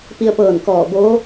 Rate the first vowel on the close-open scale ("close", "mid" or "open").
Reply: close